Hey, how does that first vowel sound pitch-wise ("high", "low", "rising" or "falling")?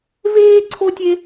high